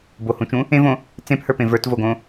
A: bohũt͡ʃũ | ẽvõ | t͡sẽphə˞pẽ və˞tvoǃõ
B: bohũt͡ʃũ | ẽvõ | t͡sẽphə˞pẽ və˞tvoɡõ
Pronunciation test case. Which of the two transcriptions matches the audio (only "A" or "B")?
B